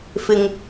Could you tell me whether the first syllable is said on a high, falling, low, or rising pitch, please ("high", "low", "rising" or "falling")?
low